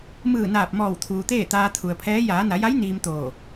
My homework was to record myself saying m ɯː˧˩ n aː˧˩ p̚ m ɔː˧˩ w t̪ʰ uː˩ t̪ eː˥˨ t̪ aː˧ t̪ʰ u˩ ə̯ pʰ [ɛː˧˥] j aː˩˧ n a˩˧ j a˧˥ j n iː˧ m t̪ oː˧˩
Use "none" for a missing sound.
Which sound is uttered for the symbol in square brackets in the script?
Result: ɛː˧˥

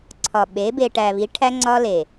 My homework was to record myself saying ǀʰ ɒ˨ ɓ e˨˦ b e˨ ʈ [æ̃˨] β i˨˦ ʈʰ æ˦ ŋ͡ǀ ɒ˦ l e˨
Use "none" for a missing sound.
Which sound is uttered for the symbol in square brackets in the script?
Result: æ˨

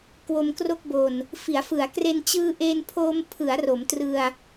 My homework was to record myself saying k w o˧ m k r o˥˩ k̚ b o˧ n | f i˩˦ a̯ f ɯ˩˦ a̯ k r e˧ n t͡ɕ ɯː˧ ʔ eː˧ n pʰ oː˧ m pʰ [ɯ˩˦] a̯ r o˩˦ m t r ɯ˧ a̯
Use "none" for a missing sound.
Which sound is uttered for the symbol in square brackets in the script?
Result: ɯ˩˦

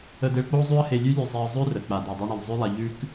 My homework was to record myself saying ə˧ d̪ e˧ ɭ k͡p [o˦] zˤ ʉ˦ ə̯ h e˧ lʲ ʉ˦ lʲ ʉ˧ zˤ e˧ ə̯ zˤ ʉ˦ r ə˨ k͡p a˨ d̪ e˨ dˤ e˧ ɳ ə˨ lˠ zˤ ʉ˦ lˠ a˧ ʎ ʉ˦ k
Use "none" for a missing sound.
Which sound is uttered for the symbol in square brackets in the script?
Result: o˦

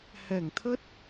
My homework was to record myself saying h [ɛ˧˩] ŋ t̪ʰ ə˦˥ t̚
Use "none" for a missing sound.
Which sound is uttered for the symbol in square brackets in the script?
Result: ɛ˧˩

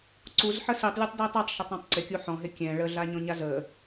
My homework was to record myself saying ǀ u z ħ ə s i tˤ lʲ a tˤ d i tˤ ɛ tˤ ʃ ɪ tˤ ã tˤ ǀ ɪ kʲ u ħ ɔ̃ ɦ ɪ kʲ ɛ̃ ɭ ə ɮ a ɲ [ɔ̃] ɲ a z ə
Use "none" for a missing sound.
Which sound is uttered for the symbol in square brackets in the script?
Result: ɔ̃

